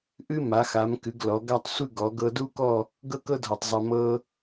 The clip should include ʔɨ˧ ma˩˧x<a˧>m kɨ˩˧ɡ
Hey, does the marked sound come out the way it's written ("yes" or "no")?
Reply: no